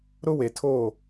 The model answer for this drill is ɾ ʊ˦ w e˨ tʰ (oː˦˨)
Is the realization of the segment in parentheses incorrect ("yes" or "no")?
no